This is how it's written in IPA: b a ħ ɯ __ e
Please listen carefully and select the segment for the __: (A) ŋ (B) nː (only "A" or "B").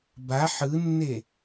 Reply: B